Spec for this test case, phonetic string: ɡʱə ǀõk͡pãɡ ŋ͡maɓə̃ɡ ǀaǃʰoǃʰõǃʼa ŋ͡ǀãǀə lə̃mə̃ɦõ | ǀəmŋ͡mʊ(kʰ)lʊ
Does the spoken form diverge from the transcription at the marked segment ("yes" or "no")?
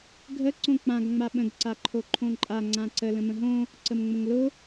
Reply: yes